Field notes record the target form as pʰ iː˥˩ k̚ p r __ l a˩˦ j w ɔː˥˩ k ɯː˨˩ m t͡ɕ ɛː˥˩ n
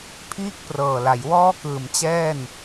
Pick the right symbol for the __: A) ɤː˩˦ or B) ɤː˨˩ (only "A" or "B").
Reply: B